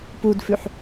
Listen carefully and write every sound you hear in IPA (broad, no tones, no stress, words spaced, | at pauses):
pudfʉħ